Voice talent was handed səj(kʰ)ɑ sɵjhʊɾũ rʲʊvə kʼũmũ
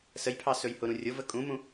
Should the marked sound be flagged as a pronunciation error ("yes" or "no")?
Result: yes